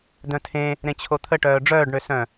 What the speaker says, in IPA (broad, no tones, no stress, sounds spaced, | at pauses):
d œ̃ tʰ ẽ | ɾ ẽ t͡ɕʰ o t̪ʰ ə ʈ œː ɖ͡ʐ œː ɖ ɳ ø s œ̃